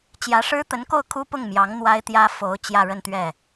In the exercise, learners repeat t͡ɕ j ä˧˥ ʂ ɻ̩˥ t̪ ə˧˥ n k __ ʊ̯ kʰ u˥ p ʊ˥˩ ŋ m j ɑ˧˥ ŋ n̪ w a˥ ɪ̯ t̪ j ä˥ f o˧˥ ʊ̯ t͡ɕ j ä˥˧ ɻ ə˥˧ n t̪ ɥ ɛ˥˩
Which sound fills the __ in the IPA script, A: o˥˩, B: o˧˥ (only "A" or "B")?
A